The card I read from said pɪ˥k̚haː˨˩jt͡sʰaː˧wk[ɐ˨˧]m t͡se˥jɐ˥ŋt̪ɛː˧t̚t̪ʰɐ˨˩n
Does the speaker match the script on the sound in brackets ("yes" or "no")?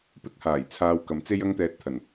no